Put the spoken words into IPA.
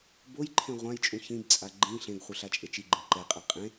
b o j ǃʰ ẽ ʁʷ ã j t͡ʃʼ ũ ç ĩ b t͡sʼ a ɡ͡ǃ ĩ ɬ ẽ ɡ χʷ ɯ ɬ a t͡ʃʼ e t͡ʃ i ɡ͡ǃ ĩ ǃ ɛ qʼ ɛ qʼ ẽ

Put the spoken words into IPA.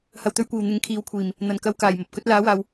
h ɐ˨ w t̪ ɵ˧ ɥ kʷ iː˨˩ w n̪ ɪ˨ ŋ kʰ iː˨ w kʷʰ iː˨˩ m | n̪ ɐ˨˩ n k ɐ˧ w k aː˨˩ j m ɐ˨ p̚ k ɵ˨˥ t̚ l aː˨˥ w aː˨ w

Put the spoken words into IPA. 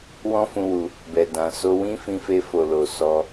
w ɔ̃˦ f ũ˧ w u˧ | b ɛ˨ d ã˨ s o˧ w ĩ˦ f ĩ˧ f e˧ f o˨ l o˨ s ɔ˧

